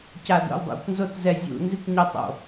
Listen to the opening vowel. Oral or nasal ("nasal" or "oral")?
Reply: oral